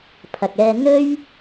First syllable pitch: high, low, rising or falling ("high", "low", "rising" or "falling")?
low